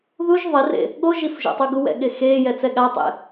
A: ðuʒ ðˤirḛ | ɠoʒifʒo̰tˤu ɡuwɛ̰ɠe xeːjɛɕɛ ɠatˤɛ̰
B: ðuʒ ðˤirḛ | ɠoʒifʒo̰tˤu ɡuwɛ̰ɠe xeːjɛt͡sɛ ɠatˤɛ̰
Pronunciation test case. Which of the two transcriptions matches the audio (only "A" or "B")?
B